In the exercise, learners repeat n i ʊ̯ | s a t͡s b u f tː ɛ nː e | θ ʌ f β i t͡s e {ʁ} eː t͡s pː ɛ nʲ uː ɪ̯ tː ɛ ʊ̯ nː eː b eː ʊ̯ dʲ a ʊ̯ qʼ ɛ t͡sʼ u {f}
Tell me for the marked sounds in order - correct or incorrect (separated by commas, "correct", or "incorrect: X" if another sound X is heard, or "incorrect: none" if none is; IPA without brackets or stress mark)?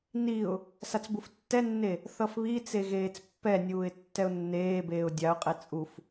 incorrect: ɣ, correct